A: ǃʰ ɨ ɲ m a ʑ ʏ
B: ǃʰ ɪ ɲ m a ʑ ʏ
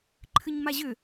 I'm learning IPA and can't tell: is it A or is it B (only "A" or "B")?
A